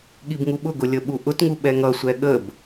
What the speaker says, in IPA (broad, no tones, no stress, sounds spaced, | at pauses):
ɠ i b ŋ u ɓ ʊ ɡ ʊ lʲ ə ɓ u ʔ ʊ t ŋ u ɓ ɛ ŋ ʌ sʷ ɛ ɠ ə b